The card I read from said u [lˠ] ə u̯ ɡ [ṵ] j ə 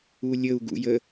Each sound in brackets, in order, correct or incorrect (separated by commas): incorrect, correct